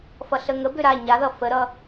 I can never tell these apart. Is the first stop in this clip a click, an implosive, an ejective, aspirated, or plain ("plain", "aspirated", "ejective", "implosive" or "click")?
plain